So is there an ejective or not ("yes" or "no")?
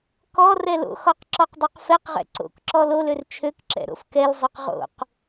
no